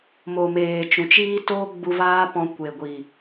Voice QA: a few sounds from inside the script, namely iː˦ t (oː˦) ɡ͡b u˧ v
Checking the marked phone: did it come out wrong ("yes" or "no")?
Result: no